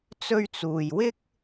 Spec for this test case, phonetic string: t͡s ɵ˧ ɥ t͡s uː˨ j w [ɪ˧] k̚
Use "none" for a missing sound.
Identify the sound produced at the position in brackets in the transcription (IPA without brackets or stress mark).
ɪ˥